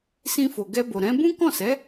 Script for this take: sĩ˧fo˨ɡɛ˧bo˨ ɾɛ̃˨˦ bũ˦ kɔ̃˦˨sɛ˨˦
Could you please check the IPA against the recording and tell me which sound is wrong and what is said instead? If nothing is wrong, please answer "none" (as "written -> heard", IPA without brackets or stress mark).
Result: none